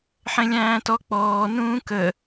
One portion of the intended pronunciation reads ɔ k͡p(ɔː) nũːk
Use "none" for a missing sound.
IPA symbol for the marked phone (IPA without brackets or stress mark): ɔː